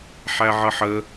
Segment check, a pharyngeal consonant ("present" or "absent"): present